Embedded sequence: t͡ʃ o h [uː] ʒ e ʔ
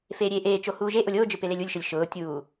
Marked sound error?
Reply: no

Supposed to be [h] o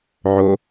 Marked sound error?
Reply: yes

